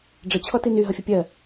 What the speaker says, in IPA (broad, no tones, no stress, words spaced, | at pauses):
ɖ͡ʐə t͡ɕʰɔtiny ɦʌfʲəpʲɜ